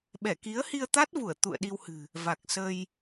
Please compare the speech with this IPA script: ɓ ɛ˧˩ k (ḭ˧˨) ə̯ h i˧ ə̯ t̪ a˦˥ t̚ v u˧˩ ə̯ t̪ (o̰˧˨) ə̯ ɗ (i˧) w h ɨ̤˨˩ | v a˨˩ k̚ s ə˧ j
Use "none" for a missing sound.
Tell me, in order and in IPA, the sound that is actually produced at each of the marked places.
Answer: i˨˦, ṵ˧˨, i˧

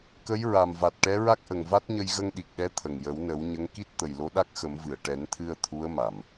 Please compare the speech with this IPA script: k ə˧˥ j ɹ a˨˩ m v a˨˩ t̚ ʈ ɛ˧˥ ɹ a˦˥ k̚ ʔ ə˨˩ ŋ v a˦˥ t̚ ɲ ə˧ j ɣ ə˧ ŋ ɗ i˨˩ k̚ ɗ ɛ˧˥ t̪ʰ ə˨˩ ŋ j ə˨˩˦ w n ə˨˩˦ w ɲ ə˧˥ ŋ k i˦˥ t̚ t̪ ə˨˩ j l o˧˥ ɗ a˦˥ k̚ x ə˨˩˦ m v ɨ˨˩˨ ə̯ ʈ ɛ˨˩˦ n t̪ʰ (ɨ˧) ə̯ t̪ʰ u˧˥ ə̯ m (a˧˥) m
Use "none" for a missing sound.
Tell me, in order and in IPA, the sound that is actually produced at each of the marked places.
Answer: ɨ˧, a˨˩˨

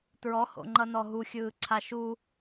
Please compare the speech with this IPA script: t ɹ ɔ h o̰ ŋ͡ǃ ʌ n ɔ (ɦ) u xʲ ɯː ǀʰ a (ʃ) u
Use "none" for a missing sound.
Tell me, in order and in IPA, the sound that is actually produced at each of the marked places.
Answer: ɦ, ʃ

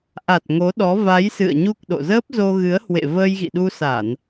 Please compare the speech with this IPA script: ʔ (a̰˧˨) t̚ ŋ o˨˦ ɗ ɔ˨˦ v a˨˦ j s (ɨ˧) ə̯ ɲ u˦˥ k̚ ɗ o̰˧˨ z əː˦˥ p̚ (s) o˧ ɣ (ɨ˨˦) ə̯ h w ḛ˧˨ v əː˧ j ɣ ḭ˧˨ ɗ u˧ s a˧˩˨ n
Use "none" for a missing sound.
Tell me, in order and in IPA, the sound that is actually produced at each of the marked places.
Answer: a˨˩, ɨ̰˧˨, z, ɨ˨˦

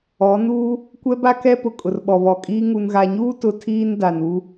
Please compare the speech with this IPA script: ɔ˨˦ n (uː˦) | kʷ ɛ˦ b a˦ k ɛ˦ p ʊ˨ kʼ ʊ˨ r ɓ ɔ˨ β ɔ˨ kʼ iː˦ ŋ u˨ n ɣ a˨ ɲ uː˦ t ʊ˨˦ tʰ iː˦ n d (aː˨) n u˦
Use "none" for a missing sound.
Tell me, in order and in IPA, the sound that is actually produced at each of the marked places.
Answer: uː˦, a˨

